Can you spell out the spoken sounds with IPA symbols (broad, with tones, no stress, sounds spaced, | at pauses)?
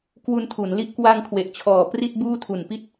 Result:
k w u˧ n tʰ u˩˦ n l i˥˩ ʔ k w a˧ ŋ kʰ w e˨˩ ʔ t͡ɕʰ ɔː˨˩ p r i˥˩ t̚ b uː˥˩ tʰ u˨˩ n p i˥˩ t̚